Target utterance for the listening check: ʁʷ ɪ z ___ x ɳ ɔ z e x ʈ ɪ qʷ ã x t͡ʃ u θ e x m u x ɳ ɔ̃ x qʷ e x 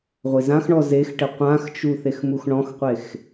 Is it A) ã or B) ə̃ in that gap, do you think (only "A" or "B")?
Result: A